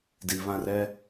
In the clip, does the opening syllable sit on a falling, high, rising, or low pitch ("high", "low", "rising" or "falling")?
low